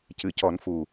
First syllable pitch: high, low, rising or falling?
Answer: low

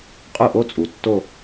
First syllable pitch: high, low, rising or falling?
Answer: falling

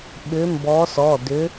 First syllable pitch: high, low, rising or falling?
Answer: rising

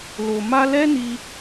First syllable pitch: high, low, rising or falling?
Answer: low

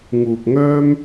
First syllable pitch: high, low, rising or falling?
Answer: low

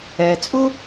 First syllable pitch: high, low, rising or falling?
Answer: low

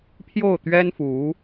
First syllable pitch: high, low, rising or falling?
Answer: falling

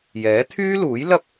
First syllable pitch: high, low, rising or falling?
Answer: rising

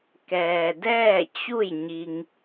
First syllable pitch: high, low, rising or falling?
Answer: low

